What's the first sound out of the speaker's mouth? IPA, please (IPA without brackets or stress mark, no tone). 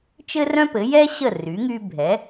t͡ʃ